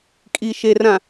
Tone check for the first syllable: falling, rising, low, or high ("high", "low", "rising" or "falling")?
low